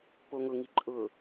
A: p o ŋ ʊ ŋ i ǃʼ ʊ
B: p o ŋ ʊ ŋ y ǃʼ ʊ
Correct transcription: A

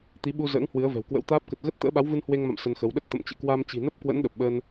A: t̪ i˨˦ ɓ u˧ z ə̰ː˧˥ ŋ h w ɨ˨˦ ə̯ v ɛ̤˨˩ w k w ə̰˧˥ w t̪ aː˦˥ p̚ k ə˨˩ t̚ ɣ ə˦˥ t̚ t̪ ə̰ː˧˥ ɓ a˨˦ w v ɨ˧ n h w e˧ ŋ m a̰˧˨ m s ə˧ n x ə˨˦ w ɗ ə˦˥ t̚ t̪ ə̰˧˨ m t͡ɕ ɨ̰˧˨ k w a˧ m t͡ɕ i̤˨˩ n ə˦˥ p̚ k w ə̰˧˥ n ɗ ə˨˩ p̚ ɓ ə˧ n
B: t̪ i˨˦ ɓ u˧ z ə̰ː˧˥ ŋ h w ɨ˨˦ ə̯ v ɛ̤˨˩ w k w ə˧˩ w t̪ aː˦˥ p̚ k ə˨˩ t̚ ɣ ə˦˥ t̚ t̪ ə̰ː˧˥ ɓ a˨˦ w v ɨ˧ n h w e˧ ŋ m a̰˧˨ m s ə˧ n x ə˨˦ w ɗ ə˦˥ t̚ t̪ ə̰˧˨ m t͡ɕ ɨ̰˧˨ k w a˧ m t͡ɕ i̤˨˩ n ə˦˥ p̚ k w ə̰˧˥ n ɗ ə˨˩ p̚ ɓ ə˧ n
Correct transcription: A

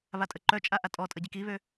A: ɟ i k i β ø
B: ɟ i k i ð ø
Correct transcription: A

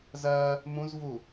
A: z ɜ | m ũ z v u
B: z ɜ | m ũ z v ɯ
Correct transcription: A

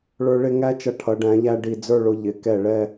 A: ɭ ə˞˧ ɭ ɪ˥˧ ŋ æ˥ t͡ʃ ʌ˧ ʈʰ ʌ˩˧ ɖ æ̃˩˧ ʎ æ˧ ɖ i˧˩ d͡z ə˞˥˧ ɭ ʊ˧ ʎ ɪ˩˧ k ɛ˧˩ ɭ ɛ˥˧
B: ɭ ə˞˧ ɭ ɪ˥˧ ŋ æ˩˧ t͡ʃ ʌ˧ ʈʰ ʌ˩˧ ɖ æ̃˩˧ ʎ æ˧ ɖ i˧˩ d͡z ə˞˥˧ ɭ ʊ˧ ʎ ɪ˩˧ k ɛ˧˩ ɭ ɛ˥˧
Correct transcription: A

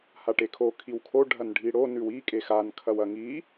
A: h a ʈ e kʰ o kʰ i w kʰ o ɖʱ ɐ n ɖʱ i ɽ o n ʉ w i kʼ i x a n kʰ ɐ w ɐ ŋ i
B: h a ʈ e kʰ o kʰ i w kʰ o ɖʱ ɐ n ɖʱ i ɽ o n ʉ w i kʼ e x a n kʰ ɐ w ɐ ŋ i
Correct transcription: B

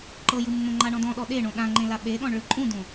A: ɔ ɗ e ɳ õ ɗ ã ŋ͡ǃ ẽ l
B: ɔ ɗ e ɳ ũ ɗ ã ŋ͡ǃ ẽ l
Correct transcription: A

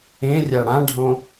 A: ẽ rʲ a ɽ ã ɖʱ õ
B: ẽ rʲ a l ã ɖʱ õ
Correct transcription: A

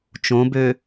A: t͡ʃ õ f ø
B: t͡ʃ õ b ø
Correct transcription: B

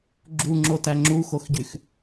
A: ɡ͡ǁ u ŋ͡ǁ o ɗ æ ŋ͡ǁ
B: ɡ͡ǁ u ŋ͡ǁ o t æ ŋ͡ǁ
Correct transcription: B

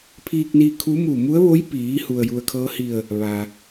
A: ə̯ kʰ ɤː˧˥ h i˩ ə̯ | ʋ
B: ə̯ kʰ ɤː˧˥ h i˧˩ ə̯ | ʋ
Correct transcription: B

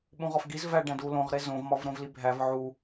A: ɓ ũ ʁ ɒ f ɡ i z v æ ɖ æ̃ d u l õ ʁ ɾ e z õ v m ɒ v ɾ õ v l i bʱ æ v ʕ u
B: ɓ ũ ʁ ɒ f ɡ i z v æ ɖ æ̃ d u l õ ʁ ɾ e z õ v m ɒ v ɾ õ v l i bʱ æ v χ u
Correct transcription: A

